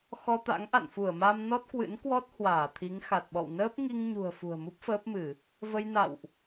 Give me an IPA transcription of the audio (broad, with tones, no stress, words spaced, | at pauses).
xɔ˧t̪a̰˧˥ŋ ʔa̰˧˨nfu˧˩ə̯ ma˧mnɔ˦˥t̚kwɨ̰˧˥n kwɔ˦˥t̚ hwaː˧˩t̪ʰi˨˦ŋ xa˨˩t̚ɓɔ̰˧˨w nəː˦˥p̚ŋi˧ŋɲṳ˨˩ə̯ fṳ˨˩ə̯mu˦˥p̚fəː˦˥p̚mɨ˧˩˨ | və˧jna̰˧˨wʔ